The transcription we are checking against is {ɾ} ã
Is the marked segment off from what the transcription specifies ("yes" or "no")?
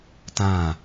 yes